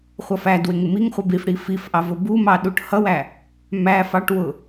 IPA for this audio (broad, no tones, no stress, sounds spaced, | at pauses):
χʷ ʌ f æ d w ɪ ŋ ɪ m i ŋ χʷ ʌ b i f ɽ i f i f ʔ ɑ v ʊ b u m ɑ ɗ u ʈ h ʌ w æ | m æ f ɑ ʈ w ʊ